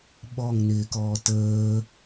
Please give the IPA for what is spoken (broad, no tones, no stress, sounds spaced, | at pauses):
ɓ ɔ ŋ n ɪː k ɔː t əː